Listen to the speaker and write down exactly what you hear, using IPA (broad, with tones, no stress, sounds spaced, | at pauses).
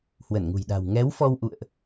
h w ə˧˩ n ŋ ṳ˨˩ j ɗ a̤˨˩ w ŋ ɛ˨˦ w f ɔ˧ w ʔ ṵ˧˨ ə̯ ʔ